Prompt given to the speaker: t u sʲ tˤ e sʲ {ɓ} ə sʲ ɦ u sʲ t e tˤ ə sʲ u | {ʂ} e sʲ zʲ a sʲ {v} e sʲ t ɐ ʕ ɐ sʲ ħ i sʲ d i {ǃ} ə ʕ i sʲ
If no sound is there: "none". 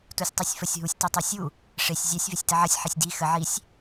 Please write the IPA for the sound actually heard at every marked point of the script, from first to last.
f, ʂ, v, x

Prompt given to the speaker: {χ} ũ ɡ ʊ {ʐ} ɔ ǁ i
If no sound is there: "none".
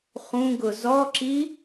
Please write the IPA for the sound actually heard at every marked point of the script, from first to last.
χ, z

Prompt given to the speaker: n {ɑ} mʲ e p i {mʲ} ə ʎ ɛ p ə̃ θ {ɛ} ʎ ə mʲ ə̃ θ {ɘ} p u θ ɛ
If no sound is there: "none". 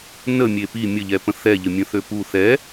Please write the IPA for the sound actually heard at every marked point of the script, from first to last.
ə, mʲ, ɛ, ø

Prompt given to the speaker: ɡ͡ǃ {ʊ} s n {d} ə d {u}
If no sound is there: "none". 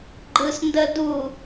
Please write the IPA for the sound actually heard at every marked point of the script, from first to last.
ɯ, d, u

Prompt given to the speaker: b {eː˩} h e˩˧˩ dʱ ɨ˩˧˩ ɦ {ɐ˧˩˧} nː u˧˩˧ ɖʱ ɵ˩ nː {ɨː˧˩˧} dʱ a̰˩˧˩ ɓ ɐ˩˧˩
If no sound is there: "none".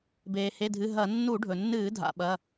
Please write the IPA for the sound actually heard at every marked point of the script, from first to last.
eː˩, ɐ˧˩˧, ɨː˧˩˧

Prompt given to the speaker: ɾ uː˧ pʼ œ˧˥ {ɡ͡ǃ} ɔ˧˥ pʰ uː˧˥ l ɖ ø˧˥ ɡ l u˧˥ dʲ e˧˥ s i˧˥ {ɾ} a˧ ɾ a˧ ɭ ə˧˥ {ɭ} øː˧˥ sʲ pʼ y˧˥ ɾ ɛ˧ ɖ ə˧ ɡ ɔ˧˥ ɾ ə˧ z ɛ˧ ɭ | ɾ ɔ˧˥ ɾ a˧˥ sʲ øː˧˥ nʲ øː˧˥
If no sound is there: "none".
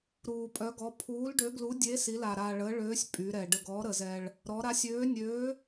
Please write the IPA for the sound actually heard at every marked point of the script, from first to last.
ɡ, l, ɭ

